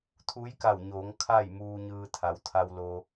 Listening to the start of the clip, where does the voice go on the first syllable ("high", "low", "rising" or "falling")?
rising